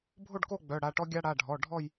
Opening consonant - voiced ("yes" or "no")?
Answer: yes